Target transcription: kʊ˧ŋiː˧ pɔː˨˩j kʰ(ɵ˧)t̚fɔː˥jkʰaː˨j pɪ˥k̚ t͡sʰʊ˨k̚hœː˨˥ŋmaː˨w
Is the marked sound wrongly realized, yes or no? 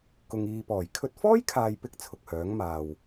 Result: no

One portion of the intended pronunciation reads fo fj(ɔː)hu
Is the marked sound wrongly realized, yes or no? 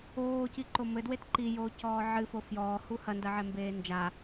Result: no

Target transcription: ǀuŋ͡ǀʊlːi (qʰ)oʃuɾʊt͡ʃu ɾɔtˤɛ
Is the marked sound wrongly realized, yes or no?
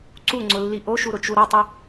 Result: yes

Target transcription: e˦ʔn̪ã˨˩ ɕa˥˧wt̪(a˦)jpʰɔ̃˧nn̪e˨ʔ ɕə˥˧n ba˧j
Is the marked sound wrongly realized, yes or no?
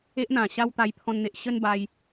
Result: yes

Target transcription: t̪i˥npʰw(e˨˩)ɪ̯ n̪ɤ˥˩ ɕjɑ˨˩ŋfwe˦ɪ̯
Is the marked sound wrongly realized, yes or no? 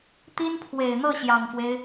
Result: no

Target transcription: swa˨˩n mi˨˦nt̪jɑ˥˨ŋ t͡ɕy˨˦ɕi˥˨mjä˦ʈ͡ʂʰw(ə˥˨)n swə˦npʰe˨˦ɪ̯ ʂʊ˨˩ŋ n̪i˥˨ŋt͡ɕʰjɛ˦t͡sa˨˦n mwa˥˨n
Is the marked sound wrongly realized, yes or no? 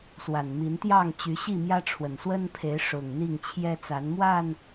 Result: yes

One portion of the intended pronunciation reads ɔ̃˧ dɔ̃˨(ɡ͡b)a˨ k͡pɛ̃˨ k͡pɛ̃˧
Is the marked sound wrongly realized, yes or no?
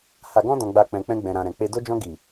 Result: no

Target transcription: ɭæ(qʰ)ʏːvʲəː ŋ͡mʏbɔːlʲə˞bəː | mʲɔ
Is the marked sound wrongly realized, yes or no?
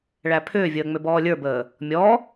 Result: yes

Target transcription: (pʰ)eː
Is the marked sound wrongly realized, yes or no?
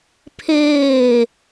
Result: no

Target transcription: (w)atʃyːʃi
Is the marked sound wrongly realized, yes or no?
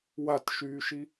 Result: no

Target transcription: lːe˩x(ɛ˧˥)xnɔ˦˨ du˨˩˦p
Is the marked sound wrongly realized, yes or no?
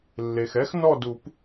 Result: no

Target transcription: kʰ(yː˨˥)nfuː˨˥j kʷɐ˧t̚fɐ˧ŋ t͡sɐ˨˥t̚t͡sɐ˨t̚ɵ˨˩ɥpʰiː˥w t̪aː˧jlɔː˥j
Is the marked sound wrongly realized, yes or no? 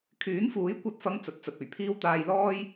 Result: no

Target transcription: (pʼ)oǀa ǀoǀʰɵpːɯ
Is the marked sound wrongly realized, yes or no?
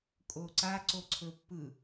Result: yes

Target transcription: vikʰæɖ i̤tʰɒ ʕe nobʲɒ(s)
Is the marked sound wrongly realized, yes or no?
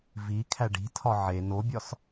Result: no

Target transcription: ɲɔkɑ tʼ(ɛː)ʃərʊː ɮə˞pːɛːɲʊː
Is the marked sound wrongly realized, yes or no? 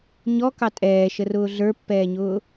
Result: no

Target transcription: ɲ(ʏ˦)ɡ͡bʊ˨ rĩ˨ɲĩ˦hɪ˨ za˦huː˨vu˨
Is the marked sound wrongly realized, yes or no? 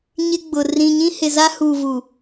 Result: yes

